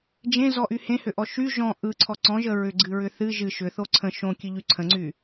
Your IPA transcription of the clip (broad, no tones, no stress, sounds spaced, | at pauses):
d͡ʒ ẽ z ɔ ʔ y h ẽ h ʏ ʔ ɔ ʃ y ʒ ɔ̃ ʔ ɯ ǀʰ ɔ ǀ ɔ̃ ʒ ə ɹ ʏ ɡ͡ǀ ɨ ɹ ʏ θ ɨ ʒ ɨ ʃ ʏ θ o ǀʰ ə̃ ʃ õ kʲ ɨ ʎ y ǀʰ ə̃ ŋ͡ǀ y